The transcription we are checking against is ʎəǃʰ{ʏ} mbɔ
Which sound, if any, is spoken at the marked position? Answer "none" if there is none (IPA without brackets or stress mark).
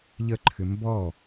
ʏ